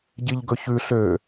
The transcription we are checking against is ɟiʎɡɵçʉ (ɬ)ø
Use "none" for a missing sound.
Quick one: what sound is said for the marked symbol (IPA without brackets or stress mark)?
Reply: ɬ